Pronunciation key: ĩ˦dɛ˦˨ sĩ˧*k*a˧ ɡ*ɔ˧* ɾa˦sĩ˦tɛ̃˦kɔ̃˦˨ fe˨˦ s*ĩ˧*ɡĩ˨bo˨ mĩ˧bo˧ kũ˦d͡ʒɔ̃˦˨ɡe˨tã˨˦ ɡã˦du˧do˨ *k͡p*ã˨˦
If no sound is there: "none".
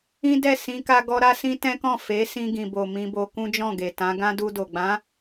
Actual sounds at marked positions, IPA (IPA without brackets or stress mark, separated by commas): k, ɔ˦, ĩ˧, ɡ͡b